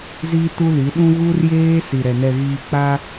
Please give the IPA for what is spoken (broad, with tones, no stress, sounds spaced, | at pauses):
z iː˦ t u˦ l i˨˦ ɗ ũ˦ ɣ u˦ r j eː˦ s i˨ ɾ ɛ˨ n ɛ˨ ɣ iː˨ k͡p a˦